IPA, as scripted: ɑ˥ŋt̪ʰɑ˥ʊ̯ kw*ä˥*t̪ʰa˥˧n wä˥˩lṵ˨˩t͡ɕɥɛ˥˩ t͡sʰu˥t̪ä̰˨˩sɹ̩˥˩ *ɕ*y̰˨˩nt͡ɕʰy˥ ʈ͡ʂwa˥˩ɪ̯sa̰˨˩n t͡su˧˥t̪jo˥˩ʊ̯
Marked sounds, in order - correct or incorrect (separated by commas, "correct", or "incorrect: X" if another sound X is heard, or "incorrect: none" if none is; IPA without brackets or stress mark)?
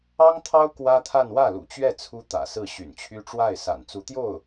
correct, correct